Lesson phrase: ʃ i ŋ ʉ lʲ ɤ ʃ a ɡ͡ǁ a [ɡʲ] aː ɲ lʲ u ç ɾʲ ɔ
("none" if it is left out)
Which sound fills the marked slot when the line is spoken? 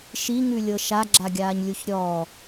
ɡʲ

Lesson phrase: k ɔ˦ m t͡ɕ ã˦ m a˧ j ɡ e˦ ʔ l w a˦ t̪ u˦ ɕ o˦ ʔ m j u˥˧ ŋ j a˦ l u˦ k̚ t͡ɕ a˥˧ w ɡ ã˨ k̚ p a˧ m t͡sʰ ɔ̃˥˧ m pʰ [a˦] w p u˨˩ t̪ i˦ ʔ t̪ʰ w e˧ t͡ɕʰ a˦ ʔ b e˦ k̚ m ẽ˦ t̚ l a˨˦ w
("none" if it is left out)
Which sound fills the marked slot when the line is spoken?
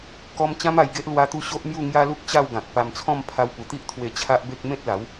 a˧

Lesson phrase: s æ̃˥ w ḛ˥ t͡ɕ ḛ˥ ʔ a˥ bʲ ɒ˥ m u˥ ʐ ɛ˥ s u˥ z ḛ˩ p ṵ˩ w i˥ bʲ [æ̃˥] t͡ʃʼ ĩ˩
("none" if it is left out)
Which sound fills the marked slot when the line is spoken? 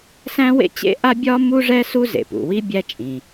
æ˥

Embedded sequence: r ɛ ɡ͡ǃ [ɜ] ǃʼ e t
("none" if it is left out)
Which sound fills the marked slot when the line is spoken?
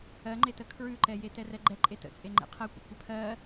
ɛ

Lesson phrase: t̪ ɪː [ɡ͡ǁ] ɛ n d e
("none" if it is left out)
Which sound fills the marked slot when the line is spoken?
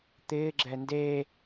ɡ͡ǁ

